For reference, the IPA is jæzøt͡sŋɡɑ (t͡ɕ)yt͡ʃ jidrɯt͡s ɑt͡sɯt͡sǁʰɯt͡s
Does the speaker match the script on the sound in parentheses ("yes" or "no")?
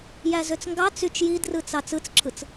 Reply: no